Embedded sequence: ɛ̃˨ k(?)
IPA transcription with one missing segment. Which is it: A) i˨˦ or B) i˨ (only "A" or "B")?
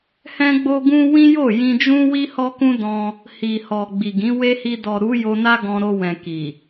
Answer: B